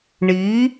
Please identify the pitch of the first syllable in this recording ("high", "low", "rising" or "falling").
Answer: rising